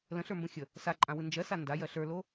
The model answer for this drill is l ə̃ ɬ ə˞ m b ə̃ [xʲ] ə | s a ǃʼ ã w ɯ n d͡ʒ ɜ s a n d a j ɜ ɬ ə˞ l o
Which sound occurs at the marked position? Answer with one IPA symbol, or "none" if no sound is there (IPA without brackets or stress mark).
xʲ